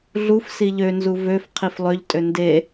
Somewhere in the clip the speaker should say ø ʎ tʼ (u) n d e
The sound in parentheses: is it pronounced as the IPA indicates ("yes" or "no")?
no